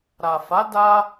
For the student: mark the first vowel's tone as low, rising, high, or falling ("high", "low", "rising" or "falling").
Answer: low